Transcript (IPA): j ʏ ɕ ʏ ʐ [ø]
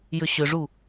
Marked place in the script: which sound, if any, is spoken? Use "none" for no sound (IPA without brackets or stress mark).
u